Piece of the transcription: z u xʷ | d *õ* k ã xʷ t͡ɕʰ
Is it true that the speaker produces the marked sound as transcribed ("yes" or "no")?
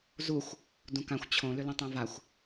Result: no